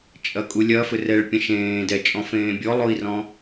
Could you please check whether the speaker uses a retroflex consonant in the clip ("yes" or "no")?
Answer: yes